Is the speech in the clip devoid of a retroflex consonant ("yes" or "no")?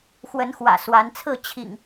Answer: yes